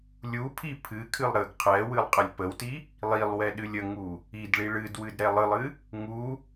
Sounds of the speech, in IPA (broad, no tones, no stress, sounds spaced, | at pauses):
lʲ u pʰ i pʰ ɨ kʰ ɨ lˠ ɾ ə ɡ qʰ ɛ w ɨ lˠ qʼ ə lʲ p ə w t i | lˠ i lˠ w ɛ ɗ ɨ lʲ ə ŋ u | i d ɭ i ɭ ɨ d w ɨ d ɾ ɛ lˠ ɨ lˠ ɨ | ŋ u